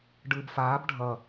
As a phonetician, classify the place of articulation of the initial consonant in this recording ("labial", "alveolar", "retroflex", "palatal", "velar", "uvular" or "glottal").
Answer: retroflex